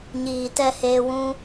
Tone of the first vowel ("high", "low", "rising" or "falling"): low